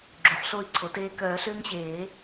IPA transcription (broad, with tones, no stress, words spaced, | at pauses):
ɡ͡ǁo˩˥ħɬo˥˨i̯ǀʰo˩˥teː˦ kœː˨˩˦ɬʏː˦ŋɕeː˨˩˦